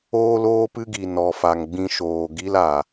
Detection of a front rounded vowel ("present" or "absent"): absent